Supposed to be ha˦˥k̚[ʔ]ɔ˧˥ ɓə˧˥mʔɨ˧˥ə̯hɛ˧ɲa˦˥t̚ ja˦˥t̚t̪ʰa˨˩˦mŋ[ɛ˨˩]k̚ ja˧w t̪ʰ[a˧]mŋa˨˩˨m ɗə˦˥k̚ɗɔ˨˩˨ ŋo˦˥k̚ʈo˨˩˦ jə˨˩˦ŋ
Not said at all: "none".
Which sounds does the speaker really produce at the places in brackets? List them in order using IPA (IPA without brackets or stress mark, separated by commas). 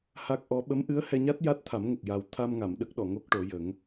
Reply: ʔ, ə˨˩, a˧